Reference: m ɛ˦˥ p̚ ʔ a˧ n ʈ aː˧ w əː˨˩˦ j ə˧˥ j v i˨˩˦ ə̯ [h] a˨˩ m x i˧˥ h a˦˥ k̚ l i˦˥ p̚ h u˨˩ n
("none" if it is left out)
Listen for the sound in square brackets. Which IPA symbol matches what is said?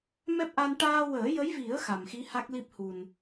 x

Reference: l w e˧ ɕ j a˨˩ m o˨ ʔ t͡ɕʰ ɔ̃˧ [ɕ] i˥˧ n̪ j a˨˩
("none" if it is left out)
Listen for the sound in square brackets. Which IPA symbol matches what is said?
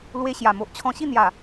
ɕ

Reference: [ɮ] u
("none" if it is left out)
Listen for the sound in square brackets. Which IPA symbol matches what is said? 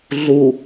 ɮ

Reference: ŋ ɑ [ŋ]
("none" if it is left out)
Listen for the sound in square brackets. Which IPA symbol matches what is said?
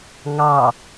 none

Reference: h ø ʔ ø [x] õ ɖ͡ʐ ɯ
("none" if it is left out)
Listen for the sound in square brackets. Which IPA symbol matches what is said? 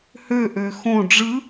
x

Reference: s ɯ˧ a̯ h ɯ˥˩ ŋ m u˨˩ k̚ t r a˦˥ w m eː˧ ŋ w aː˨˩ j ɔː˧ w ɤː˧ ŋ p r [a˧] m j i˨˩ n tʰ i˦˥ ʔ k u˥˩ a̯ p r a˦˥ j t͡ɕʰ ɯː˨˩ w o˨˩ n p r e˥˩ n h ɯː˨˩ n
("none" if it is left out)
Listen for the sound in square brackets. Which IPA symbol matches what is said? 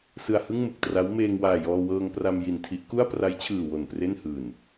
a˧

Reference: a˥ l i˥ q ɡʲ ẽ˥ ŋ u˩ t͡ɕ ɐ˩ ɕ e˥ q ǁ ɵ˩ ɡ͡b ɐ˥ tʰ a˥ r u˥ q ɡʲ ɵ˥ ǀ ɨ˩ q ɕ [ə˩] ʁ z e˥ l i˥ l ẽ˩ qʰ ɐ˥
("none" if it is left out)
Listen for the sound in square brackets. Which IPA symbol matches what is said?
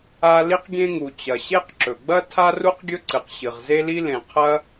ɨ˩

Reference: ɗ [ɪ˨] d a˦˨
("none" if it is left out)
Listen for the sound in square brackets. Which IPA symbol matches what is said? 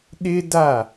ɪ˦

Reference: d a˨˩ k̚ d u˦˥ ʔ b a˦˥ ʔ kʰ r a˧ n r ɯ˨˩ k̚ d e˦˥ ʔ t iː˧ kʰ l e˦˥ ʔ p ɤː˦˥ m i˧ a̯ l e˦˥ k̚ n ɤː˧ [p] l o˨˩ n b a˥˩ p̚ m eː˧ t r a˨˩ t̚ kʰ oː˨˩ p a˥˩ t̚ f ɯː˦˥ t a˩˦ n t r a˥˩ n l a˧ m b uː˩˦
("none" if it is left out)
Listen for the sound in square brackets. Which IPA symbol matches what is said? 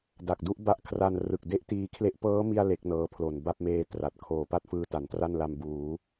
pʰ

